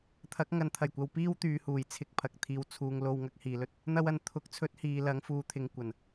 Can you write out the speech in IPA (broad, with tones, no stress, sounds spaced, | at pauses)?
t̪ʰ ɐ˨˥ k̚ ŋ ɐ˨ n t̪ʰ ɐ˨˩ j kʷ ɐ˨ w p iː˥ w t̪ yː˨˧ h uː˨˩ j t͡sʰ ɪ˧ k̚ pʰ ɐ˨ k̚ t̪ʰ iː˧ w t͡sʰ uː˧ ŋ l o˧ w ŋ ɐ˧ k̚ h iː˨ l ɵ˧ t̚ | n̪ ɐ˧ w ɐ˨˩ n t̪ʰ ʊ˨˥ k̚ t͡sʰ ɵ˨˥ t̚ h iː˨ l ɐ˨˥ ŋ f uː˨ t̪ʰ ɪ˨˧ ŋ kʷ ɐ˨˩ n